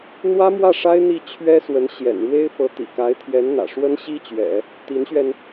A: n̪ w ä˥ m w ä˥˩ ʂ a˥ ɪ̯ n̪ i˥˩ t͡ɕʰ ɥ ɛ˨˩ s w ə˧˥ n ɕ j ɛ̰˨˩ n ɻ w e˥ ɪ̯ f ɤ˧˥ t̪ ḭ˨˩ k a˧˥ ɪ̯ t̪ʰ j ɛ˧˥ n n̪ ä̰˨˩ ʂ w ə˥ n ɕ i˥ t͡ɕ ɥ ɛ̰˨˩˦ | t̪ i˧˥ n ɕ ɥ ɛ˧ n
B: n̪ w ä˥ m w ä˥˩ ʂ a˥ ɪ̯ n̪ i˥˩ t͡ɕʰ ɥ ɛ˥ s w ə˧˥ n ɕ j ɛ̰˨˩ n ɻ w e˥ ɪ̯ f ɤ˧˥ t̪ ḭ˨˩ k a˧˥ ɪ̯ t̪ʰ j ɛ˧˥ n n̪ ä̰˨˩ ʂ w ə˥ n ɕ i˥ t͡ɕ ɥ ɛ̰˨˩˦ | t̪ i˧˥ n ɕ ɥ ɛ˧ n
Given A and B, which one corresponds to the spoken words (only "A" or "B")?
B